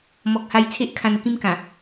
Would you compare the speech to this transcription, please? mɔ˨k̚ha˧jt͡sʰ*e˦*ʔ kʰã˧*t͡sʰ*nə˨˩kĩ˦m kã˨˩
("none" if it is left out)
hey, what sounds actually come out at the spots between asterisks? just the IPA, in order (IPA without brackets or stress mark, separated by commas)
e˦, none